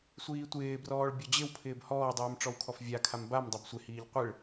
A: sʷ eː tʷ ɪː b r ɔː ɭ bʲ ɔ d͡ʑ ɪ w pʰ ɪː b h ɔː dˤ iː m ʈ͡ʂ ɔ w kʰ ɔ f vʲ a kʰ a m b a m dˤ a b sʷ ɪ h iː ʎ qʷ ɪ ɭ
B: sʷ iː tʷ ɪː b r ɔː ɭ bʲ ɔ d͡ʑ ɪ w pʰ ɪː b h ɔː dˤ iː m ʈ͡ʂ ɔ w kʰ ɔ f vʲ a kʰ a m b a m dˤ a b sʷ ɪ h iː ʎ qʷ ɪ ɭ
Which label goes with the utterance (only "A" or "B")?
B